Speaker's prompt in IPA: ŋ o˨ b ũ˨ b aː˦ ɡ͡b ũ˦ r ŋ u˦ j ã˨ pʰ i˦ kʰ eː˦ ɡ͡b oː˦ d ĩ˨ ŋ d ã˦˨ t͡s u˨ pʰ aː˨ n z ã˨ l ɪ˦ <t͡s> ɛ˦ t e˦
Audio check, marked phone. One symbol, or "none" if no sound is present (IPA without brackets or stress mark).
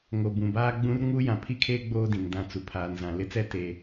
t͡s